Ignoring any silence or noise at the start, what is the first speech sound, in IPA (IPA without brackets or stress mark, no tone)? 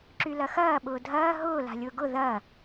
ǁ